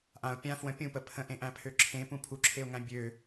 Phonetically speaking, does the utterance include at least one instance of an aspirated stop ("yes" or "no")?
yes